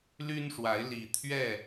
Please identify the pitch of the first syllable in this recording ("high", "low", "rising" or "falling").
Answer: high